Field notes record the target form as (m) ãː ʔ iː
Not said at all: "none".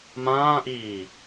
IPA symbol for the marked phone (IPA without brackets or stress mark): m